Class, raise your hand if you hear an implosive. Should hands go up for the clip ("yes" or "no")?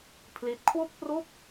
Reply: no